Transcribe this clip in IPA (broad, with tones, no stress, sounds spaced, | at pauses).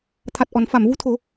t̪ʰ a˨˩ t̚ ʔ ɔ˨˩˨ n f a˨˩˨ m v u˧ t̪ʰ o˨˩˦